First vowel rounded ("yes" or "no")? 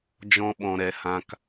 yes